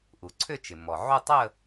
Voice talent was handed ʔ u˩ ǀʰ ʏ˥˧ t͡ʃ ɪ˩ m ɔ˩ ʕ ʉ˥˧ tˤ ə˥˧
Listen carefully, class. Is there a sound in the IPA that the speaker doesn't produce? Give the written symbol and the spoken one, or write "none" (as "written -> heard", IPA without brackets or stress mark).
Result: ʉ˥˧ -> u˥˧